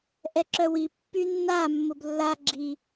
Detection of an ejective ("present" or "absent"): absent